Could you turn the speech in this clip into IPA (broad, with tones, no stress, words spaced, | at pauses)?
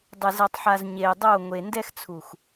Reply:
dˤɪ˨zɛ˨tˤħa˨z ɲe˨i̯ dˤo˦˨ ŋʷe˨ndɛ˧xt͡sʰu˨x